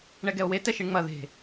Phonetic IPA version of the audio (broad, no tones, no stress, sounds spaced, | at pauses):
ɳ ɛ ɡ ɛ o̯ w e t ɛ ʃ i ɳ ŋ͡m ɐ ð e̤